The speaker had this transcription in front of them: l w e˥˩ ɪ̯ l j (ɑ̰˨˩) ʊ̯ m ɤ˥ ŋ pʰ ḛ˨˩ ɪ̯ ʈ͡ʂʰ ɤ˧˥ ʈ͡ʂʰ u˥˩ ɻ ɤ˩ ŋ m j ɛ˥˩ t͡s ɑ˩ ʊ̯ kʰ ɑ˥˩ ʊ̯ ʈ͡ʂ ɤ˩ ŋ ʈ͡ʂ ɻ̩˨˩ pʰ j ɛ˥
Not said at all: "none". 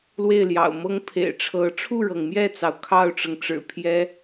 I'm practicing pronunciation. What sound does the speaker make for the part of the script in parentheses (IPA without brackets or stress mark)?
ɑ̰˨˩